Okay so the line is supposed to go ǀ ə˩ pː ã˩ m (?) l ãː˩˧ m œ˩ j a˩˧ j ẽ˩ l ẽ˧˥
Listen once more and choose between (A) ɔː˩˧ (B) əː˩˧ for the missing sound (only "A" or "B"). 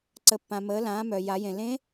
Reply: B